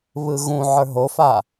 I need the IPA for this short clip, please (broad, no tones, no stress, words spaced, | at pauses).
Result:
βɯɣũ ʕə˞ɦofa